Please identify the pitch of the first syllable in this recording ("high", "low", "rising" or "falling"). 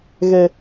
high